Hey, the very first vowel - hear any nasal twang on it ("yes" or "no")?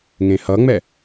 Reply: yes